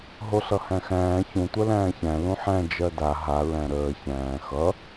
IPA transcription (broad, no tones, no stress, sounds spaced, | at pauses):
ɦ o ɬ ʌ h æ̃ x æ̃ː ç ũ tʷ ɜ l æ̃ː ç æ̃ l ũ ħ æ̃ d͡ʒ ɜ d a ɦ a ɹ æ̃ ɾ əː ç æ̃ː x ʌ